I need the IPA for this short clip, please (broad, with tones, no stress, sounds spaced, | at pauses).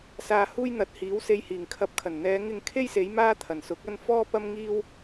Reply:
s aː˧ h uː˥ j n̪ ɐ˨˥ t̚ h iː˨˥ w s e˧ j h iː˨˩ ŋ kʰ ɐ˧ p̚ kʰ ɐ˨˩ n n̪ ɛː˨˧ ŋ ɪ˨˧ ŋ kʰ e˥ j s e˨˧ j m aː˥ t̪ʰ ɐ˨˩ n s ʊ˨˥ k̚ ɐ˥ n f ɔː˥ p ɐ˥ m ŋ iː˥ w